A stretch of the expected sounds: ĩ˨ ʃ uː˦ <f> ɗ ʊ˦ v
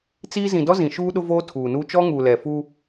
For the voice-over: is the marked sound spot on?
no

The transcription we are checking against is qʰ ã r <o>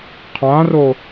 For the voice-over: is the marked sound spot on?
yes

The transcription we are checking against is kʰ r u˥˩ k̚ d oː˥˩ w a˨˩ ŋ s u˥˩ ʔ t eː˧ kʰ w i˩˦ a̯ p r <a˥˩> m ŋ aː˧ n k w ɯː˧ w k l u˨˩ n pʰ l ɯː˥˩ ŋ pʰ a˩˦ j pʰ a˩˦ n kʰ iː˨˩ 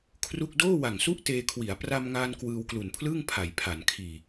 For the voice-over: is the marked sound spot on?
no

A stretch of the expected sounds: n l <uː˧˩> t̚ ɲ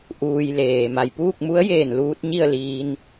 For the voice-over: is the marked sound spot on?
no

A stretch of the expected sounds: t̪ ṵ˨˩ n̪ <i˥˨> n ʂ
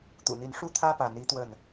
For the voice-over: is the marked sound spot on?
no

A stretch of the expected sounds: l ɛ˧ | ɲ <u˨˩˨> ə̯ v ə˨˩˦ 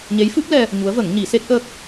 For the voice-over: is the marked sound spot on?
no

